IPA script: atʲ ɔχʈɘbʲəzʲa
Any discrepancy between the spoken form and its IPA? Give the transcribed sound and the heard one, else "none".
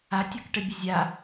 χ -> k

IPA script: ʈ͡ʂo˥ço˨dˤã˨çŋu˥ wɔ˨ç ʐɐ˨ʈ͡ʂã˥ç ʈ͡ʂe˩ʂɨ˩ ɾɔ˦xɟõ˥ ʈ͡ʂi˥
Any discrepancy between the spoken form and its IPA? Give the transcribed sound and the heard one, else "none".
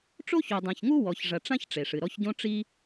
x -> ç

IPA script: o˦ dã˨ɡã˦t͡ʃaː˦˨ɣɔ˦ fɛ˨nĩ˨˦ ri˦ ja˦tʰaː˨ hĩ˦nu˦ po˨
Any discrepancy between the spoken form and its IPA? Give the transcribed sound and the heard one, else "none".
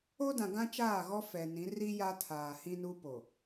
none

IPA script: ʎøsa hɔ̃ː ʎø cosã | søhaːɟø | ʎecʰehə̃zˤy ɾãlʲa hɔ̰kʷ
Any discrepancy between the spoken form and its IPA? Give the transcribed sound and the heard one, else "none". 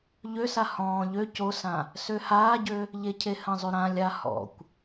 none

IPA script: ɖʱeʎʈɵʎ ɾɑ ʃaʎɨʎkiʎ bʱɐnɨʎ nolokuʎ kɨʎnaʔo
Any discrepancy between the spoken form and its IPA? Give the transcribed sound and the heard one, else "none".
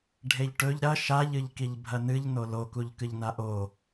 ɑ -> ɐ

